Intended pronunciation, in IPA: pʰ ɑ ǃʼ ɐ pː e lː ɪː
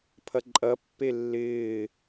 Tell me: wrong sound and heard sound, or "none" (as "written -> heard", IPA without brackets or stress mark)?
ɑ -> ɐ